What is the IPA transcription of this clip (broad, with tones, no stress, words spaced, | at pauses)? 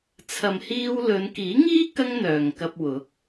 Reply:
t͡sʰɐ˨m hiː˧wlɵ˨˧n kiː˨˥ŋiː˥ kɐ˥ŋn̪œː˨ŋkɐ˧p̚wʊ˨˥k̚